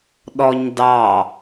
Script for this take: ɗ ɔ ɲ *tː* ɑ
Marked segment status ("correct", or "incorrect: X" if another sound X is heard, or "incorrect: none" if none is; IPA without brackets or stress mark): incorrect: d